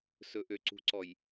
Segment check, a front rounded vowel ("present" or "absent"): present